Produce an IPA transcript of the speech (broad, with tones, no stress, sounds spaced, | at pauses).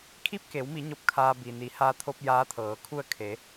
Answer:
kʰ i˥˨ p̚ k e˩˧ w m i˩˧ ɲ o˧˥ p̚ kʰ aː˧ b i˩ n i˩˧ h aː˧ t̪ʰ o˧ p̚ j aː˧˥ t̪ʰ ɤː˩˧ kʰ u˥˨ ə̯ kʰ e˩˧